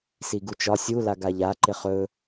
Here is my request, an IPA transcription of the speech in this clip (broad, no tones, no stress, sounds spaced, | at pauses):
s i ɡ u t͡ʃ ɒ sʲ u l a ɡ a ʎ a ǃ ɪ χ ɵ